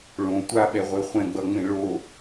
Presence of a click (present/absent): absent